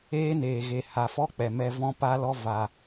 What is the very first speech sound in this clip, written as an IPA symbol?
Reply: eː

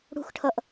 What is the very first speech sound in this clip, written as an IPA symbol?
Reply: ɽ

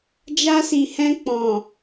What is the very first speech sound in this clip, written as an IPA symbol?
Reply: d͡ʒ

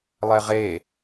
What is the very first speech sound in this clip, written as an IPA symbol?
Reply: lˠ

